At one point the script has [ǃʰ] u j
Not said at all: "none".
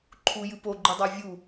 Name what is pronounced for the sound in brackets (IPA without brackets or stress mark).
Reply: ǃʰ